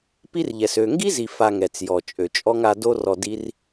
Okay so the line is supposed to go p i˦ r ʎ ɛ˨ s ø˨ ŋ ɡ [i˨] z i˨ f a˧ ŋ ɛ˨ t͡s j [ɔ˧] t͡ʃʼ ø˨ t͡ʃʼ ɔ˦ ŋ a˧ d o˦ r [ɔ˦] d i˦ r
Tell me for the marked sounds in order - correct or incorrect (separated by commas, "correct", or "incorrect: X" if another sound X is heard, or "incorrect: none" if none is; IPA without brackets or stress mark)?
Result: incorrect: i˦, incorrect: ɔ˨, incorrect: ɔ˧